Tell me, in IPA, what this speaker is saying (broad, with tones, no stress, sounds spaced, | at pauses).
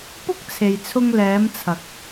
p ʊ˥ k̚ t͡sʰ e˨ j t͡sʰ ʊ˧ ŋ l ɛː˨˧ m t͡sʰ ɐ˨ k̚